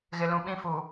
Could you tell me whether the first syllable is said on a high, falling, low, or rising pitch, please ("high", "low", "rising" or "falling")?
low